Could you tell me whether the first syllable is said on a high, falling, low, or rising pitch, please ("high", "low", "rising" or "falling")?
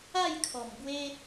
falling